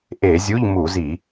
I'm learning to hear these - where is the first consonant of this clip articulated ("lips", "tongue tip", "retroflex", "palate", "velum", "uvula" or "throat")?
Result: throat